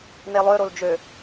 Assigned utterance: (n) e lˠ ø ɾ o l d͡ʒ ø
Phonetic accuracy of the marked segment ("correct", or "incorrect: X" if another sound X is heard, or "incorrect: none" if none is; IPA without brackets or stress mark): correct